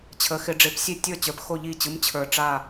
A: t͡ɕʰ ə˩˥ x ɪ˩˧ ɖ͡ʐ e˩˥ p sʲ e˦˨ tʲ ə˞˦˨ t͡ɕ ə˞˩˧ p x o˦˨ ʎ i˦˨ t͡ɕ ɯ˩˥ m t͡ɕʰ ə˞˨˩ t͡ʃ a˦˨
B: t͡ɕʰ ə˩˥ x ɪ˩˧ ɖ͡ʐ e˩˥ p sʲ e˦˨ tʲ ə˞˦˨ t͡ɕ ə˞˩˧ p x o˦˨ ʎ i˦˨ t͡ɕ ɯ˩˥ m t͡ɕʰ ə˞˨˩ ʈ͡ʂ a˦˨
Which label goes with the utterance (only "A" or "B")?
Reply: B